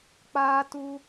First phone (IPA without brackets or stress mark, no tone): k͡p